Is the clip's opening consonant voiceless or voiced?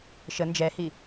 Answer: voiceless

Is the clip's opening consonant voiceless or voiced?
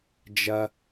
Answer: voiced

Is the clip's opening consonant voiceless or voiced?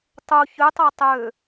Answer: voiceless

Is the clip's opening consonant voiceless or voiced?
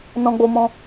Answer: voiced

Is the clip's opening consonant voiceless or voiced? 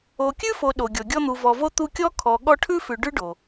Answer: voiceless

